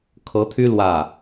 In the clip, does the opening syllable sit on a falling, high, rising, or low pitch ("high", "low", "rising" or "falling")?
rising